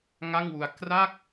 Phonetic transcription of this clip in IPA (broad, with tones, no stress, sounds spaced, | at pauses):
ŋ a˥˩ ŋ w u˧ a̯ k r aː˥˩ k̚